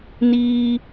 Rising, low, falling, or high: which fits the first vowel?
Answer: high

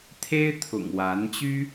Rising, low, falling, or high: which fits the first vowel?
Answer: high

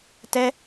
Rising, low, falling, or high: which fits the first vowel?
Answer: high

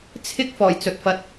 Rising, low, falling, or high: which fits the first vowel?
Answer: high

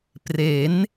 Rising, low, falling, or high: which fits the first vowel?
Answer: rising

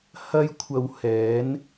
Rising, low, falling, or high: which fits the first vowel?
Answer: high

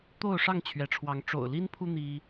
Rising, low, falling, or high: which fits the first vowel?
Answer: falling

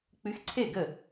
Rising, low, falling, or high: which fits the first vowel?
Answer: rising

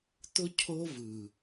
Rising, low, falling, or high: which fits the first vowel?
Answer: high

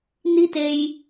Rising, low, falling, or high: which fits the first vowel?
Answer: high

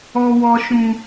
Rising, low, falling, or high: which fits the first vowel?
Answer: low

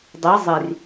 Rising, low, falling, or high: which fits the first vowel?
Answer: rising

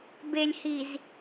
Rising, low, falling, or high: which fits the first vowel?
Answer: low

